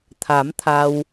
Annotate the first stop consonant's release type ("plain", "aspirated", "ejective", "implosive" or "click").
aspirated